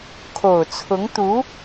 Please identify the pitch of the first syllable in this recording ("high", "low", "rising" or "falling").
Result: low